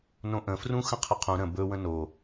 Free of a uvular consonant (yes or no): no